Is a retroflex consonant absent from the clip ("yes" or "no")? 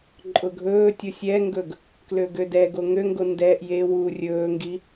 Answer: yes